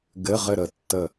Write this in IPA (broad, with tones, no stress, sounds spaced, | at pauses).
ɡ ɘ˧˥˧ ʁ ɘ˥˨ ɾ ə˧˩ tː ə˧˩